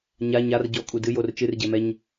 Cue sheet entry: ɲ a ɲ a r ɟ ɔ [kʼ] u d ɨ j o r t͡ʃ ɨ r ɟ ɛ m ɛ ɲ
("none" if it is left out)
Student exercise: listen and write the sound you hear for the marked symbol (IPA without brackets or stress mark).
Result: kʼ